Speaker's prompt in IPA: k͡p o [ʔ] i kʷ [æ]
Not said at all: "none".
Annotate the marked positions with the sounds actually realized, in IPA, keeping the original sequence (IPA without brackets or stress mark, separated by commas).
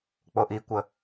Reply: ʔ, ə